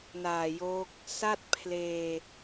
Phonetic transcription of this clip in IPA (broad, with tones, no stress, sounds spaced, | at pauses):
n aː˨˩ j o˦˥ k̚ | s a˥˩ t̚ pʰ l eː˧